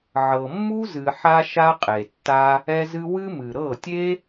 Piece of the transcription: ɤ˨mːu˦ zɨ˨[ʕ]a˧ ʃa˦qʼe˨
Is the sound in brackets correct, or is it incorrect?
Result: incorrect: ħ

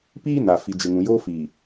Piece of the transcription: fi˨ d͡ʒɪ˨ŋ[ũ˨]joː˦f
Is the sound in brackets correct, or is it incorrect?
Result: correct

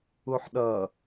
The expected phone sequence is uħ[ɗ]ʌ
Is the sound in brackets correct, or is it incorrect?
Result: correct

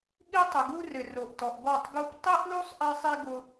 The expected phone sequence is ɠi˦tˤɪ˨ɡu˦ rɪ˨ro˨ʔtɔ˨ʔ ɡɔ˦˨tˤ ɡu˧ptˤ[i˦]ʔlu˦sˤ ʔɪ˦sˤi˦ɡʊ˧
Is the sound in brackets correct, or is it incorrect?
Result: correct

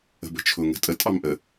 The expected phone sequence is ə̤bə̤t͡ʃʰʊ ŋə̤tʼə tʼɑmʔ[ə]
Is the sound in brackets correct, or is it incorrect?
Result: correct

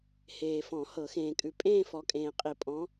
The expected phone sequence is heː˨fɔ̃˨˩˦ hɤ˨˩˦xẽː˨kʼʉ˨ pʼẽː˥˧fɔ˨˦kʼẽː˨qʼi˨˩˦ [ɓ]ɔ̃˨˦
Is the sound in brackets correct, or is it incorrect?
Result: incorrect: pʼ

